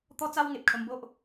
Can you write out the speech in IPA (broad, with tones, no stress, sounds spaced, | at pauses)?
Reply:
t̪ ɔ˦ t͡s a˦ w ŋ e˨ p̚ kʰ ə˧ m b o˦ ʔ